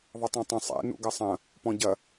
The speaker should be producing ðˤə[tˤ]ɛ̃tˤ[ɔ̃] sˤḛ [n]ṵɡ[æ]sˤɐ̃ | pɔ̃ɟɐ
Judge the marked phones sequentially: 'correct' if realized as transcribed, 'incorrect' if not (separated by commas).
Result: correct, incorrect, correct, incorrect